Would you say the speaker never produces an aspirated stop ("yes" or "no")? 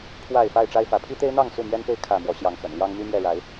no